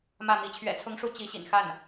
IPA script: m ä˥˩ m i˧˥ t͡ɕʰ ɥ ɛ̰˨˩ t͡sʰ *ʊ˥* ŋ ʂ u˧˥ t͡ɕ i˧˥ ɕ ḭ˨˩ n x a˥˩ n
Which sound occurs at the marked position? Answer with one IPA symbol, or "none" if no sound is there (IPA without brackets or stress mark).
ʊ˧˥